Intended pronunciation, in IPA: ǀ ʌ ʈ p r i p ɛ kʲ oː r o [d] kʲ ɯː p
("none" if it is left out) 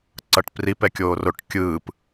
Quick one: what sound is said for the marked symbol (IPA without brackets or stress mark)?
ʈ